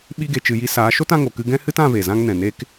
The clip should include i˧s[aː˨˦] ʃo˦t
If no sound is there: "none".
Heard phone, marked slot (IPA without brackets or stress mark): aː˨˦